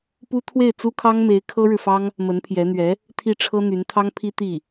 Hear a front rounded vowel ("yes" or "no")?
yes